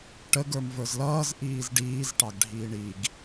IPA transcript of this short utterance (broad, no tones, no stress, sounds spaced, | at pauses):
ʈ ə ɡ ə˞ m v ə˞ z l ʌː z ʔ iː z ɖ iː z ʈ ɑ ɡ ɖʱ iː ɳ i ɡ